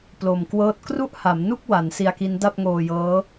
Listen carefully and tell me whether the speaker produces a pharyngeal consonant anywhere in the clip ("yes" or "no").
no